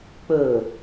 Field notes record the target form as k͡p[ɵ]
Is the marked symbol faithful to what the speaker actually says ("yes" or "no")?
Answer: yes